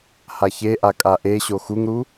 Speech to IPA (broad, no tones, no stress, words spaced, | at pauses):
haçeʔa kʼaʔeɕo xuŋɾu